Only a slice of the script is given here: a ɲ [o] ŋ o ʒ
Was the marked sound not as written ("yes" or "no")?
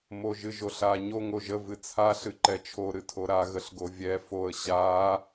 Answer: no